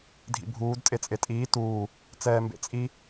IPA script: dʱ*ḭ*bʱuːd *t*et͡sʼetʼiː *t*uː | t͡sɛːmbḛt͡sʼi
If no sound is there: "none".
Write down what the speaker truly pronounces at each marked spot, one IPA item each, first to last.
ḭ, tʼ, t

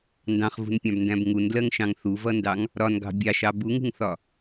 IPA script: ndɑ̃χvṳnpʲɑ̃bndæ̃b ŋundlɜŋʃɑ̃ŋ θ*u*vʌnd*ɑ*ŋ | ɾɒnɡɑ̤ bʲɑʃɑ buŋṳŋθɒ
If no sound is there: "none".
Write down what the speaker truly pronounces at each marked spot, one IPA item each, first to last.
u, ɑ

